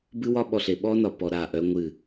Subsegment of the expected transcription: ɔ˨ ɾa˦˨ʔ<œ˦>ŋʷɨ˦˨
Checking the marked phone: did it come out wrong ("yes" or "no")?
no